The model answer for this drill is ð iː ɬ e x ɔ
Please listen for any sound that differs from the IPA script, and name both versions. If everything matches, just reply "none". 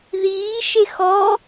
ɬ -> ʃ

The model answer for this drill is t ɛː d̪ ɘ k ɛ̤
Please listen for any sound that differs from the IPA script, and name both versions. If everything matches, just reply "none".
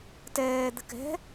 none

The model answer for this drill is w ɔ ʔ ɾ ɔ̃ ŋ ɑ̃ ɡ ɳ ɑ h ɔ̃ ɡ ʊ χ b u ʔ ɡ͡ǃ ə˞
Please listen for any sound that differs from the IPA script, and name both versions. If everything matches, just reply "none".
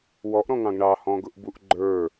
χ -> ʔ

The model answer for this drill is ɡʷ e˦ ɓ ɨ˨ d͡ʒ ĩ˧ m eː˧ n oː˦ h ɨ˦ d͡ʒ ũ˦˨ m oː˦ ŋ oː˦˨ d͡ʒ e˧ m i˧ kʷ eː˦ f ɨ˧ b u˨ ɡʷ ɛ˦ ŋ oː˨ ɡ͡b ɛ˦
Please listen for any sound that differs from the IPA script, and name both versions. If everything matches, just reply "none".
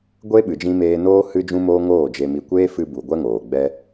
ũ˦˨ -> ũ˦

